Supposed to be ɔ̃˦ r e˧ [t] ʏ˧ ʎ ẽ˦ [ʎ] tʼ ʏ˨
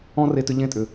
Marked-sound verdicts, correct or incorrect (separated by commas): correct, incorrect